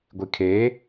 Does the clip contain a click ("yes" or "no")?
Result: no